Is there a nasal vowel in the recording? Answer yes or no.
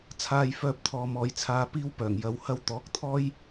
no